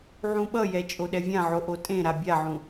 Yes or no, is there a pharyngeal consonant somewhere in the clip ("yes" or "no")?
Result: yes